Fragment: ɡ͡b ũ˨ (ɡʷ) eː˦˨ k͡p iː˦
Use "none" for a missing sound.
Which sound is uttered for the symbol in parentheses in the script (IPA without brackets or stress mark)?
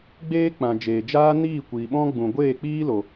ɡʷ